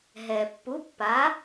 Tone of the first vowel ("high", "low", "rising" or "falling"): low